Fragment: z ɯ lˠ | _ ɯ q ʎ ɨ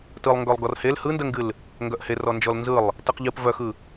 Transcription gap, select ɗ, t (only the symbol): t